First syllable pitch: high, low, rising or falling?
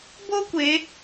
high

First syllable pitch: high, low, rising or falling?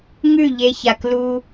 falling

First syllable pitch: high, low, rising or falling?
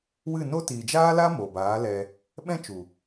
falling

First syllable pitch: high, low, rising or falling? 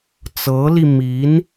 rising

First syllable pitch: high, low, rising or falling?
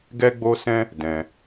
high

